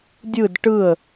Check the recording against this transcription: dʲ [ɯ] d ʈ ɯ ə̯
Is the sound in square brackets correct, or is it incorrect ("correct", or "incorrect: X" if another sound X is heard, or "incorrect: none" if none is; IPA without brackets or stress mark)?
correct